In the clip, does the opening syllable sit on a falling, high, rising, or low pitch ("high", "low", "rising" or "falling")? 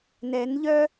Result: rising